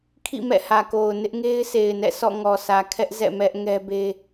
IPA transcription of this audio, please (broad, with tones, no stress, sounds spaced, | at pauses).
kʰ ḭ˦˨ m ɛ̰˦˨ h ä˨ k o˨ ʊ̯ n ɪ˦ ʔ ŋ e˦ ɪ̯ sʰ e˨ ɪ̯ n ɛ̰˦˨ sʰ ɔ̰˦˨ ŋ ɔ˨ sʰ ä˨ kʰ ɛ˦ ʔ z ɛ̰˦˨ m ɛ˦ ʔ ŋ ɛ˦ b e˦